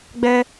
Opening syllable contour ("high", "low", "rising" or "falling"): high